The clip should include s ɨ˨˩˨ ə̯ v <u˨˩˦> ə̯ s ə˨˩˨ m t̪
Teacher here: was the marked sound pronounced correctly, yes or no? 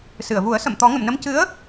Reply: yes